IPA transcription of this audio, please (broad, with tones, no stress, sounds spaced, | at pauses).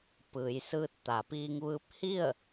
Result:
p ɯː˩˧ j s ɯː˧ t̚ t̪ a˩˧ p iː˧ ŋ ʋ ɯː˧ p̚ h i˥˨ ə̯